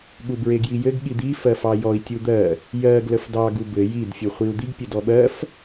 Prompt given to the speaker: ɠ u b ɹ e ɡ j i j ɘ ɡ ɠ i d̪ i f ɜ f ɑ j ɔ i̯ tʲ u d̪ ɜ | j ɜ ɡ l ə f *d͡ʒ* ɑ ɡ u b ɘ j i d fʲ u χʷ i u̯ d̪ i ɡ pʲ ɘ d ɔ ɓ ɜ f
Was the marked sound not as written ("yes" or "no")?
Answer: yes